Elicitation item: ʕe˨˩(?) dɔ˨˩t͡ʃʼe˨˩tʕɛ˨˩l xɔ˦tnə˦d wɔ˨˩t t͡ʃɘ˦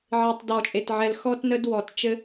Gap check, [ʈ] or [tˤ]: tˤ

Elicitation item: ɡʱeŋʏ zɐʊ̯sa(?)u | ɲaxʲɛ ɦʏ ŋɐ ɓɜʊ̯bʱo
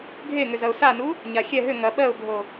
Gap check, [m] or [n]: n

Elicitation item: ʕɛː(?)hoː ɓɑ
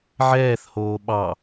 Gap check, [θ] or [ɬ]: θ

